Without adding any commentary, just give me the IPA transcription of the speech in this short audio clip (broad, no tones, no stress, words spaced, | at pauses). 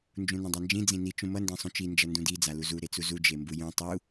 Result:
nd͡ʒũnũdˤand͡ʒĩ d͡zĩni t͡ʃũmʌ ndẽsˤũt͡ʃi nd͡ʒʌndũdi d͡zaluzu ɾet͡suzu d͡ʒembujũ tˤu